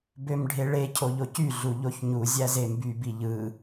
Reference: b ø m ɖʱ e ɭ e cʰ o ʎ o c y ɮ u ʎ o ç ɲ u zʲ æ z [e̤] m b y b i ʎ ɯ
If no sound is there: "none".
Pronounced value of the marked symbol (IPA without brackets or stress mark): e